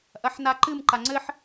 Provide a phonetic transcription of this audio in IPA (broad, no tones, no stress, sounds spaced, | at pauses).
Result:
ʔ ɐ ħ n a ǃ ɨ m ǃ a ŋ͡ǀ ɘ ħ